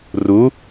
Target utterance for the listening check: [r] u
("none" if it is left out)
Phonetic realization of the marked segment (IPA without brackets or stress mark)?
r